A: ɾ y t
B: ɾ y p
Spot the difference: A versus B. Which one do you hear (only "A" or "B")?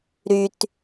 A